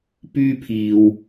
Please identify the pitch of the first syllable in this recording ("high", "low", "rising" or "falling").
high